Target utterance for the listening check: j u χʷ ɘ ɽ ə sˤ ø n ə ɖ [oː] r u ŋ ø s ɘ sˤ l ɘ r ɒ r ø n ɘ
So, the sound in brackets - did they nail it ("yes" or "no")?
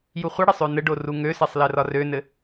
no